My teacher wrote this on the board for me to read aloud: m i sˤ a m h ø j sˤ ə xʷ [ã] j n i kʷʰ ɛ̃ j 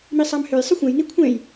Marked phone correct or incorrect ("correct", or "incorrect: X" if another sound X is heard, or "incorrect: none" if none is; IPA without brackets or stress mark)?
correct